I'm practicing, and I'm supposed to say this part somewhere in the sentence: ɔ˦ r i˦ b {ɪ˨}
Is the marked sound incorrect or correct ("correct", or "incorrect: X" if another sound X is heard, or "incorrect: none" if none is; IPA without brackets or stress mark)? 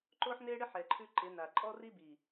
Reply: incorrect: i˨